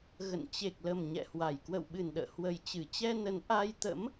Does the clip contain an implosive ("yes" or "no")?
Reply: yes